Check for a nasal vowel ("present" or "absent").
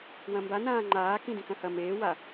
present